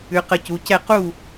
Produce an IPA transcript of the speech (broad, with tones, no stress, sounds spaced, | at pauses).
ʉ˩˧ q ə˧˩ c u˩˧ c ɛ˥˩ q u˥˩